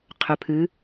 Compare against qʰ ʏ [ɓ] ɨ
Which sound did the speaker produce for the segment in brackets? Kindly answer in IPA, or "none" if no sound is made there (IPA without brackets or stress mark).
pʰ